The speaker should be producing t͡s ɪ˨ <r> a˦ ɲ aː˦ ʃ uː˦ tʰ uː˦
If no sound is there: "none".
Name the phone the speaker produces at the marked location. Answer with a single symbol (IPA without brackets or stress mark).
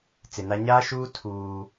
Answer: n